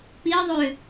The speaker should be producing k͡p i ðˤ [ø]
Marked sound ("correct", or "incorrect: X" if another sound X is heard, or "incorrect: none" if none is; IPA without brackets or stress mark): correct